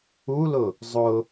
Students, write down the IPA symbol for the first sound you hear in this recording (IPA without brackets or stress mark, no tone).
u